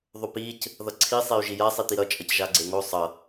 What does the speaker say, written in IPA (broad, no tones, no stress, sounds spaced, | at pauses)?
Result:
ðˤ o p i c | ð ʌ ǀʰ i sˤ e y̯ ʒ i j a sˤ i t̪ i ɾ ʌ t͡ʃʼ ʌ c ʒ a ɡ͡ǀ e ŋ o sˤ ʌ